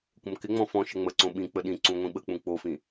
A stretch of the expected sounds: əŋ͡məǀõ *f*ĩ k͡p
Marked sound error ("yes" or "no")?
yes